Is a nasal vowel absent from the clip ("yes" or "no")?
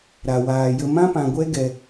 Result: no